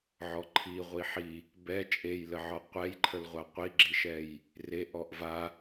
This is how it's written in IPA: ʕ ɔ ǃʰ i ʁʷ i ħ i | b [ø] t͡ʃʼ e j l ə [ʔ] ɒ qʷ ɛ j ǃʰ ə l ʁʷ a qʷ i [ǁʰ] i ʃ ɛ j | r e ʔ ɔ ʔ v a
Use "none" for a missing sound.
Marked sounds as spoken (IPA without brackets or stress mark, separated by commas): ɛ, ʕ, ɡ͡ǁ